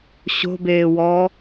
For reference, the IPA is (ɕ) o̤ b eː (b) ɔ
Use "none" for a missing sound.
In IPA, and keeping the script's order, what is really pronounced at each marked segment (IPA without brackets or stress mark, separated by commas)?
ɕ, w